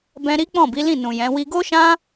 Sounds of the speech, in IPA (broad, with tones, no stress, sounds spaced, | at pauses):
b ɛ̃˦ ɾ i˦ k͡p ɔ̃˦˨ b i˨˦ l ĩ˦˨ n ũ˨ j ɛ̃˨˦ w i˧ ɡ o˦ ʃ ã˦